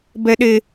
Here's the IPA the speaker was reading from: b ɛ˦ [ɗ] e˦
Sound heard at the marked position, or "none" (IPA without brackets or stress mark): ɗ